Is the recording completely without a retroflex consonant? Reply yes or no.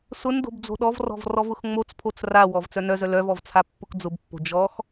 yes